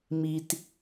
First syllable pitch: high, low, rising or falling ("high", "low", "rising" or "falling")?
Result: low